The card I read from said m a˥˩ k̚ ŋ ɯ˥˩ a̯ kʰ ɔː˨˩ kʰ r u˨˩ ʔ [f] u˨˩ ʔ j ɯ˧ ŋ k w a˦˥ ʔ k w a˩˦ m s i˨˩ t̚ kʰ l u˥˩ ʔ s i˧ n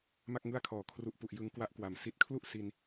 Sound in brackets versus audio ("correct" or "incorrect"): incorrect